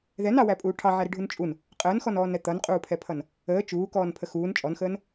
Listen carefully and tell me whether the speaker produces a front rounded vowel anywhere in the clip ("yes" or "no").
no